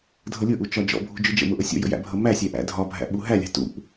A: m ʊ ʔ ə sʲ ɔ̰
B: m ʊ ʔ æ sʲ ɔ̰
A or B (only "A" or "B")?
A